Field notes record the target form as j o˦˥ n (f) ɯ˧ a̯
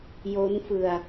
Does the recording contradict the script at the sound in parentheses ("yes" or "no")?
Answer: no